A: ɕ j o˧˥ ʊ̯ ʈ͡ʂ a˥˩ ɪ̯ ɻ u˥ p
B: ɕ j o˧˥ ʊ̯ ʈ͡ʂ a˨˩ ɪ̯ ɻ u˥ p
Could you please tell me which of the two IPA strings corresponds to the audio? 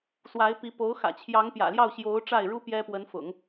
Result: A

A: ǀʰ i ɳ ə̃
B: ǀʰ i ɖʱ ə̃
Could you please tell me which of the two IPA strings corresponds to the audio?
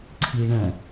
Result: A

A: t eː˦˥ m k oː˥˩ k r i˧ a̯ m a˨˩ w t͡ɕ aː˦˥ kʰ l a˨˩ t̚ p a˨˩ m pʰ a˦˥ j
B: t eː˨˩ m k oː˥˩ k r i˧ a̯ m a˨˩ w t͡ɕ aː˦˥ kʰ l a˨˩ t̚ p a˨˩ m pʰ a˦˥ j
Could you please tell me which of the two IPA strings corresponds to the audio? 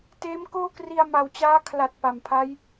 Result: A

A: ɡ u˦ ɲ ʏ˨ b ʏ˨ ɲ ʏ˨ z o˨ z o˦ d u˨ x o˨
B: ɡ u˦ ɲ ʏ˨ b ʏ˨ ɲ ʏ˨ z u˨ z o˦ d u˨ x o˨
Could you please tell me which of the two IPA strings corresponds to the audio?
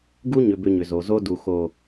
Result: A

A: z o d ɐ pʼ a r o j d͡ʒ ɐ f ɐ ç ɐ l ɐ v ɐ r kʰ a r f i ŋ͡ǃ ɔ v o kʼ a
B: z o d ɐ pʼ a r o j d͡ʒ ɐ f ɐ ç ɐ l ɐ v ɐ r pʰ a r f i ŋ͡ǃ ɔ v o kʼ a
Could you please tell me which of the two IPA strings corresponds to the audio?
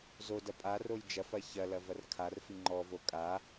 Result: A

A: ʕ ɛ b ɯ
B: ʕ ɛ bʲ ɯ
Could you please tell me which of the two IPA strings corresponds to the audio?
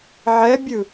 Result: B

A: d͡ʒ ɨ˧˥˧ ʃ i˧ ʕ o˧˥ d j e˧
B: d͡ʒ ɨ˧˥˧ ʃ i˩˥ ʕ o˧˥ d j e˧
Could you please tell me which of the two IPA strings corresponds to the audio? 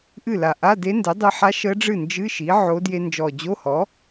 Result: B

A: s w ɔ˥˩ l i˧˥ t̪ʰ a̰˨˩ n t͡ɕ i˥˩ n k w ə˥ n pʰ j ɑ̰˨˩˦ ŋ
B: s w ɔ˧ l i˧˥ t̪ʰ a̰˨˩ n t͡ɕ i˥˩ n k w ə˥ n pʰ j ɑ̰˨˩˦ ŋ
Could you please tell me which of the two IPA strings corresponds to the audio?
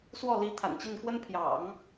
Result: A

